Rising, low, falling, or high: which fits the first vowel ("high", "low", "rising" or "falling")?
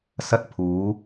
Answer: high